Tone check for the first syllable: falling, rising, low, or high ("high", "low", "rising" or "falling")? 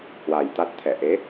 low